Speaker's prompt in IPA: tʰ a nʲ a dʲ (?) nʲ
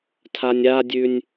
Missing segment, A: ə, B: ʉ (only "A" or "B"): B